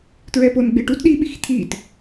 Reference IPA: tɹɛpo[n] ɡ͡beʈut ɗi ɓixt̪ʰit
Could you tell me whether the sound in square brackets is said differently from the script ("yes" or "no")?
no